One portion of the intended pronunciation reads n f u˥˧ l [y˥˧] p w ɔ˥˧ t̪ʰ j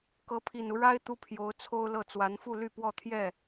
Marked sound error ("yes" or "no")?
no